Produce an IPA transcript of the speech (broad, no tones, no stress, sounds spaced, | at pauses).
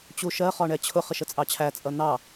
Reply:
t͡ɕ u ʃ ɜ χ ɒ ɳ ɛ t͡ɕʰ ʊ χ ɪ ʃ ə t͡sʼ ɑ t͡ɕʰ æ t͡sʼ ʌ n̪ ɑ